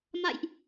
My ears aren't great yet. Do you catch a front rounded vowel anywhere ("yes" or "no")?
no